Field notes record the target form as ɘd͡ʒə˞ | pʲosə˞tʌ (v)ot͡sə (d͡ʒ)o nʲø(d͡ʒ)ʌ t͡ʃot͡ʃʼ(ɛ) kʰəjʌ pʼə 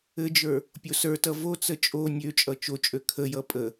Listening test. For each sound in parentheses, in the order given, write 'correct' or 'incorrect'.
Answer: correct, incorrect: t͡ʃʼ, incorrect: t͡ʃʼ, incorrect: ø

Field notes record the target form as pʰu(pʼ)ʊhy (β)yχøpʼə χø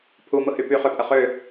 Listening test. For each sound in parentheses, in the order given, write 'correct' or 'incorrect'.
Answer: incorrect: m, incorrect: p

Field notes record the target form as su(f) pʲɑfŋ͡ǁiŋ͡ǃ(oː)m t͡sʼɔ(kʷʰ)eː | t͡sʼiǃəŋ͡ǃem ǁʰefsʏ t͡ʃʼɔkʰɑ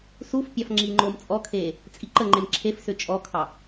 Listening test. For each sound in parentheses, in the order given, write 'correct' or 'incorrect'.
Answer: correct, correct, incorrect: kʰ

